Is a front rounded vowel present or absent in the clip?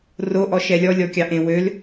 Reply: present